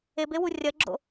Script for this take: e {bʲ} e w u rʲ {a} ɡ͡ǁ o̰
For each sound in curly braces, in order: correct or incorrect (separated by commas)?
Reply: incorrect, incorrect